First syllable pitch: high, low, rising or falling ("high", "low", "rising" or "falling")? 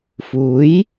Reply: rising